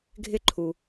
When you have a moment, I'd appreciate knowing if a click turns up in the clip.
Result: yes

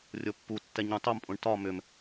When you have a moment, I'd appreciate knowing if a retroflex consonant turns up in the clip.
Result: yes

